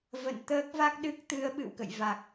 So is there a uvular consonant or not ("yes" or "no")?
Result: no